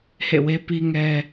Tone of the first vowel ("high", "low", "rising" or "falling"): falling